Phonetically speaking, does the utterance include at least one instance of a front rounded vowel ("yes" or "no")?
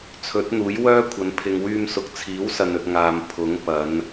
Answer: yes